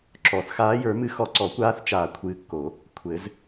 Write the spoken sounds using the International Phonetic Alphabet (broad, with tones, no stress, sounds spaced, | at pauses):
ǁ ɔ˨˩˦ θ x aː˨˦ j ə˞˨˩˦ m ɨ˨˦ x ɔ˨ ǀ ɔ˨˩˦ kʷ aː˨˦ θ t͡ʃ aː˨ kʷʰ ɨː˨˦ kː o˨˩˦ | kʷʰ ɘ˨˩˦ z